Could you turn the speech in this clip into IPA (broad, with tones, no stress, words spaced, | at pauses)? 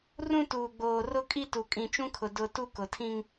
rũ˦tuː˨ɡ͡boː˨ rʊ˦kʼi˦ tu˨kʼĩ˨t͡ʃũ˦kʰʊ˨ dʊ˨ tu˦kʊ˨tʰĩ˦ŋ